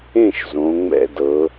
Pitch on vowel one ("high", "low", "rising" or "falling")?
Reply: falling